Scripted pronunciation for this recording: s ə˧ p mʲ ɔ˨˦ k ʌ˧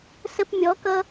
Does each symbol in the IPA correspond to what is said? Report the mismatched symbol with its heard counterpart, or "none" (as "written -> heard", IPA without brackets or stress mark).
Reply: none